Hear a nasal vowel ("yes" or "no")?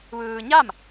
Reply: no